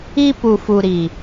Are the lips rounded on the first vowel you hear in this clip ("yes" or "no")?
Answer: no